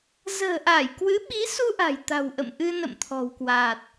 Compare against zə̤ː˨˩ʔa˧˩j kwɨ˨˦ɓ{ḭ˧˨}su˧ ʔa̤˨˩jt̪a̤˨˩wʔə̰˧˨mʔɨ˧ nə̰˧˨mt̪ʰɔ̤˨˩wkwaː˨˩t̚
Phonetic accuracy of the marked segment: incorrect: i˨˦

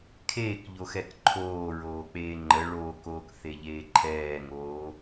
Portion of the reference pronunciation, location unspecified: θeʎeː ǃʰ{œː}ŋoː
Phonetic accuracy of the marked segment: incorrect: ɛː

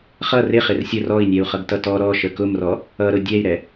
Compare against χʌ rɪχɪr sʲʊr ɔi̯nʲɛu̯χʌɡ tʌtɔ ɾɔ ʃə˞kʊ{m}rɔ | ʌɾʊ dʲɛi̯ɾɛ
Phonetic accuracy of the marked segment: correct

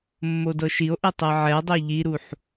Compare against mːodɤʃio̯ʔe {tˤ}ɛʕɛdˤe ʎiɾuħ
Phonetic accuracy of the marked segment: correct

